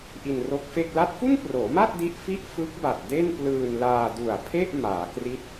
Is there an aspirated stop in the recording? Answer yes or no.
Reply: yes